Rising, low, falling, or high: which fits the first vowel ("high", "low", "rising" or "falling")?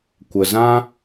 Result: low